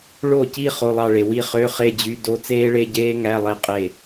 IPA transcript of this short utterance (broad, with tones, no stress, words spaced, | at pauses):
ɭo˥˩ci˥˧ χo˧˥˧lˠɑ˥˧ɭe˨ wi˥˧χø˧˥˧ χe˥˧d͡ʑy˧˥˧ do˥ t͡seː˥ɭe˧˥˧ɟeː˥ ŋæ˧˥˧lˠe˥˩ qʼe˥˩